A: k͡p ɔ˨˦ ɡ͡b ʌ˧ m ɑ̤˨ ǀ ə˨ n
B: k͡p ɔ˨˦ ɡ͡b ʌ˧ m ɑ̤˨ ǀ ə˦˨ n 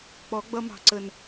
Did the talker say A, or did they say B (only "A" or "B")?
A